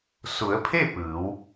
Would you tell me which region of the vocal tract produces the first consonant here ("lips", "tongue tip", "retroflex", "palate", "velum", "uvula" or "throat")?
tongue tip